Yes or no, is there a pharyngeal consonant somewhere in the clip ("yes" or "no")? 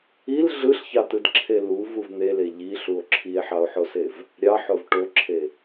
yes